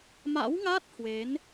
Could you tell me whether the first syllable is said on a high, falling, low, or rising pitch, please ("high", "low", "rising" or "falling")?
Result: rising